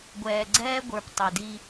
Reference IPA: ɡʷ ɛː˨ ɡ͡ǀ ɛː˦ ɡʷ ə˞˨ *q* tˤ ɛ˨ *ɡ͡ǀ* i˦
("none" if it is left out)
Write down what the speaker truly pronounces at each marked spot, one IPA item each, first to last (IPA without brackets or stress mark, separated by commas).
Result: p, d